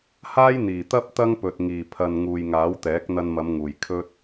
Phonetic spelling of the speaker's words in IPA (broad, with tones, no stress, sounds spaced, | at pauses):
h aː˥ j n̪ iː˨˩ t̪ ɐ˥ p̚ t̪ ɐ˥ ŋ p ɵ˨ t̚ ŋ iː˨˩ pʰ ɐ˨ n ŋ uː˨ j ŋ aː˨˥ w t̪ ɛː˨˥ k̚ n̪ ɐ˧ n m ɐ˨˧ m ŋ uː˨˩ j kʰ ɵ˥ t̚